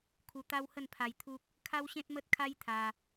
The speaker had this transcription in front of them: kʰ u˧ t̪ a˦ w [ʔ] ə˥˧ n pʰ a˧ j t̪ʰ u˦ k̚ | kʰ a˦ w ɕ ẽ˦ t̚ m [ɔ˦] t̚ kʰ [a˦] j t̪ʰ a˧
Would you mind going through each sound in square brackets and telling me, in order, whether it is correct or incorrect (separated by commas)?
incorrect, incorrect, correct